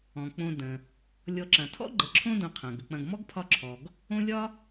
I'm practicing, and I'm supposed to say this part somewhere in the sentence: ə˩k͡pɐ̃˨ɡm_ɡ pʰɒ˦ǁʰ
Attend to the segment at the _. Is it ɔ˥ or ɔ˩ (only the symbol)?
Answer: ɔ˥